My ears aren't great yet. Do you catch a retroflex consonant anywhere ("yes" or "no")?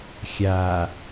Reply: no